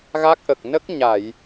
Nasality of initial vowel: oral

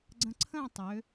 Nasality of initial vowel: nasal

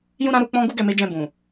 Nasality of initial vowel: nasal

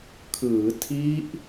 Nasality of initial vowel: oral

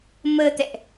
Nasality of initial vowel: oral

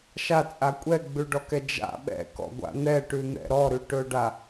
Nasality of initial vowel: oral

